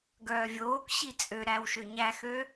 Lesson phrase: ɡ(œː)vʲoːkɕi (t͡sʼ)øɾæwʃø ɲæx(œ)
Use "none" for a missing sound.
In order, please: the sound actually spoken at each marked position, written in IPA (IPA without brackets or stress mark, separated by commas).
œː, t͡sʼ, ø